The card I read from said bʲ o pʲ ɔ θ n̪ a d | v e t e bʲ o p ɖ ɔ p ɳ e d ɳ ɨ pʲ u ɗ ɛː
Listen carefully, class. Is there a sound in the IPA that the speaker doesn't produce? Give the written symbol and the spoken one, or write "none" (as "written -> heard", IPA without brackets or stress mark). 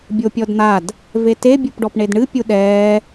θ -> d